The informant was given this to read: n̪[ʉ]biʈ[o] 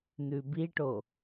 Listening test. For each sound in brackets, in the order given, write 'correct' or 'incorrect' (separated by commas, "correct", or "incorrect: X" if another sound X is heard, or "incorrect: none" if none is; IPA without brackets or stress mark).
correct, correct